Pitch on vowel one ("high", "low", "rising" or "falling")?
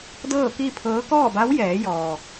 falling